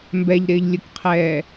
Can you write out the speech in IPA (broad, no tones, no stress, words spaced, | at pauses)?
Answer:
mbɛʎɾɪːʎlʲʊkqʰɛː